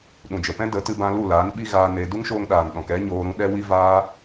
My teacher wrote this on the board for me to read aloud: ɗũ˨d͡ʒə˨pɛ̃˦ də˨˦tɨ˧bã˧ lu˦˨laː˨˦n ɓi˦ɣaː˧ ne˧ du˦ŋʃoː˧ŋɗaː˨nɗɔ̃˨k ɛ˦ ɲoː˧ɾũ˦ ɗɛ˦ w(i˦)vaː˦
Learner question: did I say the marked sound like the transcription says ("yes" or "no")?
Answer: yes